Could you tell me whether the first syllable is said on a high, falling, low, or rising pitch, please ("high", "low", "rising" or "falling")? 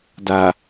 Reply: low